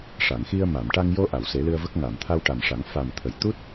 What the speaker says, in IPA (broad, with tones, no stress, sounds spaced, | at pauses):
ʂ a˨˩˨ ŋ x i˧ ə̯ m a˨˩˨ m ʈ a˧ ŋ j o˧ ʔ a˨˩˨ w s e˨˩˦ l ɨ˧ ə̯ v ə˦˥ k̚ ŋ a˨˩˨ m t̪ʰ a˧ w ʈ a˨˩ m ʂ a˨˩˦ ŋ f a˨˩ m t̪ʰ ə˨˩˨ j t̪ u˦˥ t̚